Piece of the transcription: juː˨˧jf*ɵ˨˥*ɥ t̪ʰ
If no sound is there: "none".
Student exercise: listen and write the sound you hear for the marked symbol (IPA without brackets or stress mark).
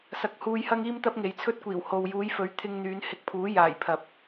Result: ɵ˨˥